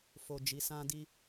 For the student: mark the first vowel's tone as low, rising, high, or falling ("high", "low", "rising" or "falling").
low